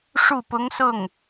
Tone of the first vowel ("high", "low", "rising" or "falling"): falling